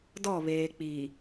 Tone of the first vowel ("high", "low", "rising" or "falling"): falling